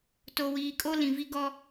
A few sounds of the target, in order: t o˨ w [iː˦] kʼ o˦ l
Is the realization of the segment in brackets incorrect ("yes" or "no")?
yes